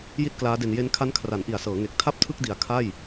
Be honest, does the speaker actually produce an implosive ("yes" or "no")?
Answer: no